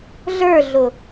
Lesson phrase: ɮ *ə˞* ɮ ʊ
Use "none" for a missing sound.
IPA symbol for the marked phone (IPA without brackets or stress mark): ə˞